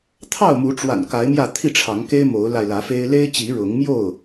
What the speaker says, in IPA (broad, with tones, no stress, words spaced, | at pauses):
t̪ʰɑ˥˨ʊ̯mu˨˦ʈ͡ʂwa̰˨˩n ka˨˦ɪ̯mjä˥˨ t̪ʰi˥˨ʈ͡ʂʰɑ˨˦ŋke˦ɪ̯ mo˨˦ʊ̯la˧ɪ̯lä˨˦fe˦ɪ̯ le˦ɪ̯ t͡ɕi˨˦ɻʊ˨˦ŋmjo˥˨ʊ̯